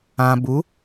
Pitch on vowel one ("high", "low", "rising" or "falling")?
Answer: low